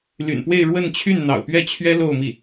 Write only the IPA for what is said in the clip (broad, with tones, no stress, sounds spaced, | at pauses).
l y̰˨˩ n p w e˥˧ ɪ̯ ɻ w ə˥˧ n t͡ɕʰ y˥˩ n n̪ ɑ̰˨˩ ʊ̯ p ɥ ɛ˥˩ t͡ɕʰ ɥ ɛ˥ l o˥˧ ʊ̯ m i˥˩